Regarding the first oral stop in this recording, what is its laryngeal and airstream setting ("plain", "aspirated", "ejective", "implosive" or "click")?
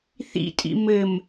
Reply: ejective